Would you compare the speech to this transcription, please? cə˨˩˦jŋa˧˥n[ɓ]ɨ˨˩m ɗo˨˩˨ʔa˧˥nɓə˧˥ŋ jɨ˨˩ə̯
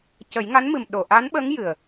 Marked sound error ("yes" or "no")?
yes